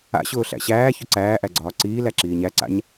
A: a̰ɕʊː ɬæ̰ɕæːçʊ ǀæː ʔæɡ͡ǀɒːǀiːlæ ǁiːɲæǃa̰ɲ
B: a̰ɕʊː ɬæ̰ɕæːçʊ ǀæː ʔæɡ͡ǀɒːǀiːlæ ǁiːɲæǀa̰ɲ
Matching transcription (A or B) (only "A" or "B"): B